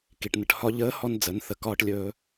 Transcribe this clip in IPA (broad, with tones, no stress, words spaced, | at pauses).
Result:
ki˩ʈnə˩˧ʈhɒ˧ ʎəː˧˥ hɔ˧nd͡zə˩˧n θə˩˧kɒː˧ʈlʲɵː˧